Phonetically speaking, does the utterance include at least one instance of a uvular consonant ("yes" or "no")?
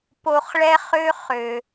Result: yes